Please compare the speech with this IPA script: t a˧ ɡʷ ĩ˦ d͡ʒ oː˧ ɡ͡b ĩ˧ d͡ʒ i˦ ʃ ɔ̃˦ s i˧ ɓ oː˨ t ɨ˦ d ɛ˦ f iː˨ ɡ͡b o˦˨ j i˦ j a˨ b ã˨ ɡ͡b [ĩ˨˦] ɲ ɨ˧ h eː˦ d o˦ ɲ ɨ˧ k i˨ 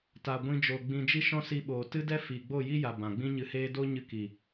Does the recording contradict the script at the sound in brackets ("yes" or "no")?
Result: yes